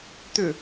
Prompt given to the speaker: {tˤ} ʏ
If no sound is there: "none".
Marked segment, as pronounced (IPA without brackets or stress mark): t̪